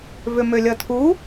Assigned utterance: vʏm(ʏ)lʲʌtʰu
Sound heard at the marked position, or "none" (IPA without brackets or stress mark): ʏ